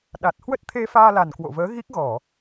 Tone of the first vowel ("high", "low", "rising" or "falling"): low